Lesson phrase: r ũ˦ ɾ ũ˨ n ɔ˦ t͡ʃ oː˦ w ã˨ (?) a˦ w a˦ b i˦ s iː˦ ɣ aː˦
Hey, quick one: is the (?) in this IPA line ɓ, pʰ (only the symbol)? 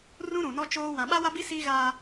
ɓ